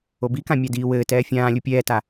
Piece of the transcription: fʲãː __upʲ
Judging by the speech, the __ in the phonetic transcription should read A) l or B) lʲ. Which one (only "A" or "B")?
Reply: B